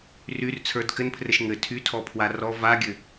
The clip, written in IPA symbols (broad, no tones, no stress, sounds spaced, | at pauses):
r y r t͡sʰ ə˞ d k ɘ n pʰ r ɘ ʃ ŋ ɘ tʰ y tʰ ɔ pʰ w a r ɔ v a ɡʲ ɘ